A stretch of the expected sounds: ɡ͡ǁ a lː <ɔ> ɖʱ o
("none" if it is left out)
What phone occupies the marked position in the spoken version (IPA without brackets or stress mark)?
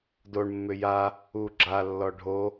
ɔ